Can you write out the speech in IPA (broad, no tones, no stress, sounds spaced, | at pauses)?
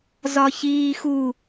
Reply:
z ɒ ç iː x u